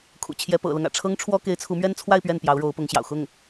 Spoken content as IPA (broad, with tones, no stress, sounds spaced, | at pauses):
kʰ ṵ˨˩ t͡ɕʰ j ɛ˥ p ɤ̰˨˩ l ɤ˦ ŋ ä̰˨˩ ʈ͡ʂʰ ɤ˥ ŋ ʈ͡ʂʰ w ɔ˥ k e˧˥ ɪ̯ t͡sʰ u˧˥ m ɥ ɛ˥ n t͡sʰ w a˥˧ ɪ̯ p ɥ ɛ˥˩ n p j ɑ˧˥ ʊ̯ ɻ o˧˥ ʊ̯ p ʊ˧˥ ŋ ɕ j ɑ̰˨˩ ʊ̯ x ʊ˥˩ ŋ